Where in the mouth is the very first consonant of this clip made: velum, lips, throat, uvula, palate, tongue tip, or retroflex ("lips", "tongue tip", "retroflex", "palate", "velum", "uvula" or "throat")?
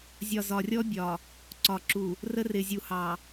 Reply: tongue tip